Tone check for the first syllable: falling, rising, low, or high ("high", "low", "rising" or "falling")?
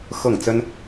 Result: falling